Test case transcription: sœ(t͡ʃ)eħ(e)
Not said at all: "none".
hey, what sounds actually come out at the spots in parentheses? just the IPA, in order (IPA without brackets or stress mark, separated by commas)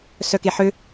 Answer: k, ø